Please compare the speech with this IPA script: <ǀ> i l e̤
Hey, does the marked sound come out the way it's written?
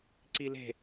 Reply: yes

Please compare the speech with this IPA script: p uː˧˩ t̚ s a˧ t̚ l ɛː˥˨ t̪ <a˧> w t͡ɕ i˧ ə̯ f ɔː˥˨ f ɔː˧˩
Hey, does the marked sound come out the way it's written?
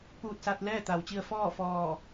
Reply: no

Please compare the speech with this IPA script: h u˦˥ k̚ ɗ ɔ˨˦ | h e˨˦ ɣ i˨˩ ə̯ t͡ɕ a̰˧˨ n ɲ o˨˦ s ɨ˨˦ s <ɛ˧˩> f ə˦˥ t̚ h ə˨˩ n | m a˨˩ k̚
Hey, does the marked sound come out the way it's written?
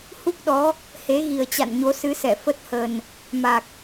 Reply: yes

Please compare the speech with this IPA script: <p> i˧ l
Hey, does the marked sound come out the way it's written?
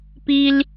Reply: yes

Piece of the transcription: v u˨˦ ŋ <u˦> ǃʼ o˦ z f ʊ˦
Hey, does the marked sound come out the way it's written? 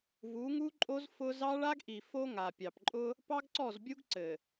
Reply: yes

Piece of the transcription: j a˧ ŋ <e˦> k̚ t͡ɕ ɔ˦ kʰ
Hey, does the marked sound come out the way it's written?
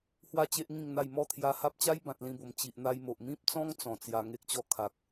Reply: yes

